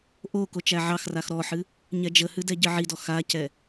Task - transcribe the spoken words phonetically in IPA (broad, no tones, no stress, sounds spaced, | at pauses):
ʔ o k o t͡ʃ æ ʕ ɑ x r a x ɾ ɔ ħ ɨ | ɲ ɛ d͡ʒ ə h ɨ d ɛ ɟ ɨ ʕ i d ɔ x a c ɛ